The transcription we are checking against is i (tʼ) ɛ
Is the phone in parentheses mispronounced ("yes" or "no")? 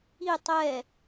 yes